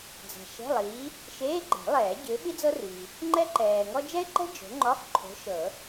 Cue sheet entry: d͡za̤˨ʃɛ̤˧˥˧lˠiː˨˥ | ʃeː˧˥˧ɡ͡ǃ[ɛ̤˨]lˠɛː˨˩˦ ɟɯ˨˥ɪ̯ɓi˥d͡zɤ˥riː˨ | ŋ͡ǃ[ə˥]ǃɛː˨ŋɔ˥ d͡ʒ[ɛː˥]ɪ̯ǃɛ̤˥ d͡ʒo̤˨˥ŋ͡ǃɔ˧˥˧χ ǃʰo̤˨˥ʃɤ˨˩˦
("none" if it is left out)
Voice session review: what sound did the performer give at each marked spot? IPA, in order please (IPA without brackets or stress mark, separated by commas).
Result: ɛ̤˨˩˦, ɛ˥, ɛ˥